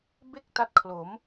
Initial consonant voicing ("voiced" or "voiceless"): voiced